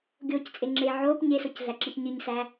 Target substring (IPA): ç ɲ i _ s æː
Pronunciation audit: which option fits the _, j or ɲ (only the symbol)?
ɲ